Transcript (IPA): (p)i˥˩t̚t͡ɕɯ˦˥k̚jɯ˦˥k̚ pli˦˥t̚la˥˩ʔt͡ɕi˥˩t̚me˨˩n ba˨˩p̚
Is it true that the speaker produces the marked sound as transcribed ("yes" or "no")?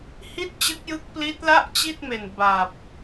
no